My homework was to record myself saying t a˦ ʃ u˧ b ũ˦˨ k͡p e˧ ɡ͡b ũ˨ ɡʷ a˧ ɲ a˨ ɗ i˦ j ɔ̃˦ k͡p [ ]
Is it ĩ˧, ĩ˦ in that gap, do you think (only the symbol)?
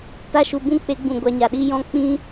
ĩ˦